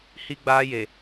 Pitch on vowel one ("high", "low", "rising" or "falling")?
high